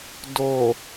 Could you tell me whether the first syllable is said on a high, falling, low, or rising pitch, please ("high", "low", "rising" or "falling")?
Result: low